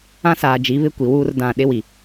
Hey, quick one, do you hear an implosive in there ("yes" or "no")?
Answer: yes